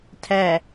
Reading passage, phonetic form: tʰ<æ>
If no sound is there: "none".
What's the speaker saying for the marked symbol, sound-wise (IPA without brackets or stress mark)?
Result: æ